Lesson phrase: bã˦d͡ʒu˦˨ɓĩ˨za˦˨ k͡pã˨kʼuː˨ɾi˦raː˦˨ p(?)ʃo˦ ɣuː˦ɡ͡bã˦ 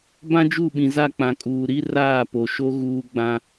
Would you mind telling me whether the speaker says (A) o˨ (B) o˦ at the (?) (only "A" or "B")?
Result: A